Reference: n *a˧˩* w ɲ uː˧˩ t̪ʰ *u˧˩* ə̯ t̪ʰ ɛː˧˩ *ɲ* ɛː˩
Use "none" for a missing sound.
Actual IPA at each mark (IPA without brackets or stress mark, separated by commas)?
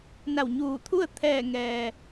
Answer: a˧˩, u˥˨, ŋ